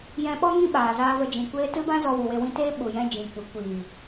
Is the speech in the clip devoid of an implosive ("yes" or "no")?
no